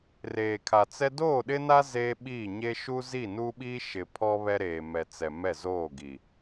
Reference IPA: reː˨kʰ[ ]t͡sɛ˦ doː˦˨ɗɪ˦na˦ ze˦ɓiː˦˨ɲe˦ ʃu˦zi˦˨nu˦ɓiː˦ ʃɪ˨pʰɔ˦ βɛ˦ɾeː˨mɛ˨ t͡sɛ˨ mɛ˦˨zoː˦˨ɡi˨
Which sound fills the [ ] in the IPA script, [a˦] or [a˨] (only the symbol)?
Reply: a˨